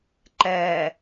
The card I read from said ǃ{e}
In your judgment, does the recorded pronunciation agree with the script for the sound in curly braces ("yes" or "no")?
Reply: no